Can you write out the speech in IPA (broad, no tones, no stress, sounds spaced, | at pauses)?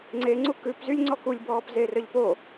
ŋ͡ǀ e ŋ͡ǀ u k ʉ p z y lʲ ŋ͡ǀ ɔ k u lʲ b ɔː p z e r œ ʎ p o